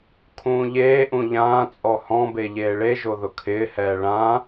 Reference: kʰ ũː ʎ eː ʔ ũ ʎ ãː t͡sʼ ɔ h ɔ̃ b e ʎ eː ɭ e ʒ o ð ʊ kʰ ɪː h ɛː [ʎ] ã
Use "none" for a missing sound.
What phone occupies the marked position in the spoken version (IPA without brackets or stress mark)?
ɭ